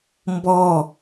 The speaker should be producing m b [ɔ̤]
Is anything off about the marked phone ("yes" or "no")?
yes